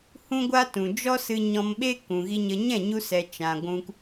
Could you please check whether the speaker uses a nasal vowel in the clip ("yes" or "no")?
yes